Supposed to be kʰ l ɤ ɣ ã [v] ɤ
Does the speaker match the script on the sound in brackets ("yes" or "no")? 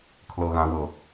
no